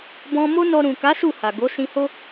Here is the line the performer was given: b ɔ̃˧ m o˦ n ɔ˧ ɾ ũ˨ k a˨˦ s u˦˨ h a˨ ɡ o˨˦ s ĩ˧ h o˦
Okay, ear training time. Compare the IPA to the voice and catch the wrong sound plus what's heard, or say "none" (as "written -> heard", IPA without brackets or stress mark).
none